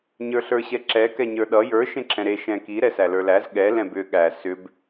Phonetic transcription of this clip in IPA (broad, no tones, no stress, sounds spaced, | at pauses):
ɲ ə˞ ɬ ə˞ ɕ ɛ ǁ ɛ k ɛ ɲ ə˞ ɗ ʌ j ə˞ ʃ ẽ ǁʰ ɛ̃ ɾ e ʃ ɛ̃ k i ɾ ɛ s æ l ə˞ l æ z ɠ ɛ l ɛ̃ b ʏ ɠ æ s ʏ b